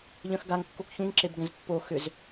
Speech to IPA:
ʎ œ̃ x ɡ a ŋ kː o k ç ũ ŋ ǁ e b ɡ ɛ̃ z pː o x ʏ z

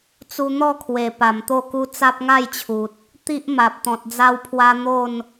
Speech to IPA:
t͡s u˧ n̪ ɔ˥˧ kʰ w e˨˩ p a˨˩ m t̪ o˥˧ k u˦ t͡s a˦ p̚ ŋ a˥˧ j t͡ɕʰ u˨ t̚ | t̪ i˦ ʔ m a˨ p̚ t̪ ɔ̃˨ t̚ d͡z a˦ w pʰ w a˦ n̪ o˥˧ n

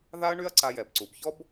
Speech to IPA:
ð a˦ ɐ̯ ɳ y˦ ɐ̯ ǀ a˧ j ɛ˨ b ǀ u˨ b ç ɔ˦ b

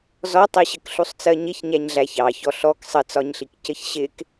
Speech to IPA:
z ɔ tˤ i ɕ ə k ɬ u sˤ t͡s ɜ ɲ ɪ ç ɲ æ ɲ ɮ æ ç ɑ ç ɔ ɬ ɔ k sˤ ə t͡s ɒ ɲ ɬ i k c ə ç ɕ ɪ k

